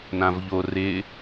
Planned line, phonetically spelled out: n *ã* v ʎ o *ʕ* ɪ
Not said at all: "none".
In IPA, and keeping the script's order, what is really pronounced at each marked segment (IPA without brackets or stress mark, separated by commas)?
ã, r